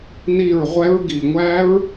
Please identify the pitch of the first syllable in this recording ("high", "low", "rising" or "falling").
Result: falling